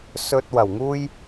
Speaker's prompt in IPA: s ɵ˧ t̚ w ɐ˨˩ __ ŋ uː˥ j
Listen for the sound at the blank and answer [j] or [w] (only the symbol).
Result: w